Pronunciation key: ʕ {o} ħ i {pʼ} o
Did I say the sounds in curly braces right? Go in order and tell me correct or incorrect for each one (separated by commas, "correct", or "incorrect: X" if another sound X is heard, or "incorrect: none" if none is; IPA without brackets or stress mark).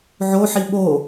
correct, incorrect: ɓ